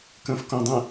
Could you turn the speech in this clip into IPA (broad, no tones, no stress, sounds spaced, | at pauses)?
k ə̃ f k õ dˤ ə̃